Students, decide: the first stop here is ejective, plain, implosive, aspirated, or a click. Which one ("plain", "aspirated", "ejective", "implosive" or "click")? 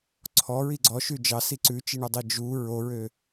click